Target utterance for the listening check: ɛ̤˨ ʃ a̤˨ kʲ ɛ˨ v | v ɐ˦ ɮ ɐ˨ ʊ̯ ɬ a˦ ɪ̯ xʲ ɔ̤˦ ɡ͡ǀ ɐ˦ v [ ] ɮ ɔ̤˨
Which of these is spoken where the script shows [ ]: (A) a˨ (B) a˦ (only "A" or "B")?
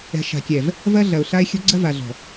A